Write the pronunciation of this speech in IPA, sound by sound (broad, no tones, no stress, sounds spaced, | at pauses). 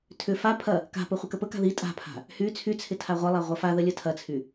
tʰ ʏ f a pʰ ɐ | k a̤ p ə χʷ ɪ k ə p ə k a̤ ð i tʼ a̤ pʰ a̤ | h y t͡sʰ y t͡sʰ ɪ tʰ a ʁʷ ɐ lˠ a ʁʷ ɐ f a ð ə lʲ ə tʰ ɐ t͡sʰ y